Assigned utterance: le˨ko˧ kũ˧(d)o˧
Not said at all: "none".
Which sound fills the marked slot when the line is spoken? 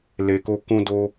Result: d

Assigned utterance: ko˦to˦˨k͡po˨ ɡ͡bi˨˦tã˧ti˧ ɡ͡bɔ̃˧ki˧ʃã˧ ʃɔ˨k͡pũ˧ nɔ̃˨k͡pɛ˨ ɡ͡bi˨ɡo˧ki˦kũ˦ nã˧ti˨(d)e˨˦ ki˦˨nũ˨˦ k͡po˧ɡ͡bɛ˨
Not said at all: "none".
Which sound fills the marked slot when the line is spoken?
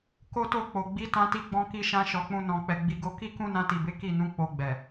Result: b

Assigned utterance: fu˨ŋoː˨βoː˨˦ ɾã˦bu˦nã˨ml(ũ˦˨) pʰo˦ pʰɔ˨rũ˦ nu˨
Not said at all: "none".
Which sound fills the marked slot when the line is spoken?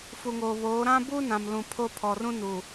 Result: ũ˨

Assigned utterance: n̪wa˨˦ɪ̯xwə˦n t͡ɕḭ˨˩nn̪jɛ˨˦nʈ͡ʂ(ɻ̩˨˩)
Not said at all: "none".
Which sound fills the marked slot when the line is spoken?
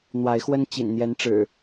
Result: ɻ̩˨˩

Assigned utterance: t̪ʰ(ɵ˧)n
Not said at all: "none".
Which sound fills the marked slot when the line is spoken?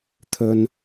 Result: ɵ˧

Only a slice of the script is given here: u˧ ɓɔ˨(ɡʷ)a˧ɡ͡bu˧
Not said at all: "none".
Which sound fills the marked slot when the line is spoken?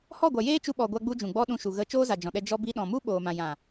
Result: ɡʷ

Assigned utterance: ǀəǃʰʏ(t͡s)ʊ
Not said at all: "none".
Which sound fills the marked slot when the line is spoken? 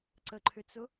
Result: t͡s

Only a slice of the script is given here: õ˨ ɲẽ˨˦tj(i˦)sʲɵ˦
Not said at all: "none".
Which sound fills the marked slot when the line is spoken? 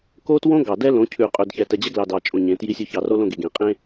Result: i˦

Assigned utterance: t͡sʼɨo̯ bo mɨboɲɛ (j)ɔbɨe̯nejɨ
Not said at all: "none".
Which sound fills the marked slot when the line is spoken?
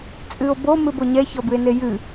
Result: ç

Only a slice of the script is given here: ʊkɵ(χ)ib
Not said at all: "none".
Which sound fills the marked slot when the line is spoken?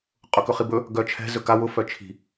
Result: χ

